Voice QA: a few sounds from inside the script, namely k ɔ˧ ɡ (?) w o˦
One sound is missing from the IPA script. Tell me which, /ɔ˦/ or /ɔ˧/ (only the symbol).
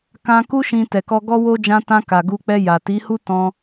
ɔ˦